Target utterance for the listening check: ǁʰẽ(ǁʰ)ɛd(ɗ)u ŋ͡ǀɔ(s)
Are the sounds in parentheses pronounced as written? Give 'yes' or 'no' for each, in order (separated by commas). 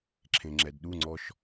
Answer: no, yes, no